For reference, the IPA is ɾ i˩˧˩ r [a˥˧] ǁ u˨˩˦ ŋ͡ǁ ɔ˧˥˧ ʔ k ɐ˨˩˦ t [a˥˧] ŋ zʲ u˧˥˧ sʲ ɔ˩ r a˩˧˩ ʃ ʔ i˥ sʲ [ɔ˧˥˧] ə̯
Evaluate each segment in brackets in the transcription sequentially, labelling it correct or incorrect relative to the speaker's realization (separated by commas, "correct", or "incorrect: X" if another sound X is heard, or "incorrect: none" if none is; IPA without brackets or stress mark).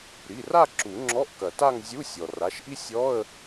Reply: correct, correct, correct